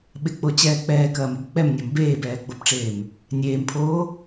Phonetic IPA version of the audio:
ɓ ɪ k͡p o t͡ɕ ɛː k͡p ɛː k ɐː m ɪ b k͡p ɛ m nʲ ɒ m b eː b ɛː ɡ͡b o b ʈ͡ʂ eː m | nʲ eː m pʰ oː

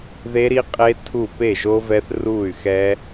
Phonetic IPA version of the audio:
ð e˦˥ ɾ i˦˥ qʼ eː˦˥ tʰ u˥˩ p e˥˩ ʒ o˦˥ v ɛ˦˥ θ r uː˥˩ y̯ x ɛ˦˥

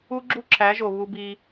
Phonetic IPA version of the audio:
u˦ ɡ͡ǁ u˦ ǁʰ æ˨˦ ʒ o˨ β u˧ b i˧

